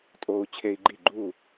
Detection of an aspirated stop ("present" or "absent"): present